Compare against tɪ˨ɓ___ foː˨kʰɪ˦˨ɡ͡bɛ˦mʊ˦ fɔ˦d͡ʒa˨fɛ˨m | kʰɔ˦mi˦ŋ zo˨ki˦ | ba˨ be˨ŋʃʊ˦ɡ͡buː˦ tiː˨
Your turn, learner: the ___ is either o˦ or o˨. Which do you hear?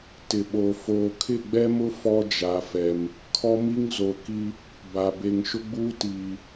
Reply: o˨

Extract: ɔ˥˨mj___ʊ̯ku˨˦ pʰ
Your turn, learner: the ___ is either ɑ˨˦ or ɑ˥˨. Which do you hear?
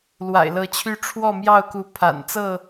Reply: ɑ˥˨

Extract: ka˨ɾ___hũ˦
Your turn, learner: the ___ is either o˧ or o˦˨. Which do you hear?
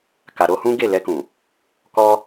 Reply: o˧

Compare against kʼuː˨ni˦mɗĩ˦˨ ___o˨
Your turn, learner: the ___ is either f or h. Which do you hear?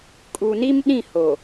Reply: h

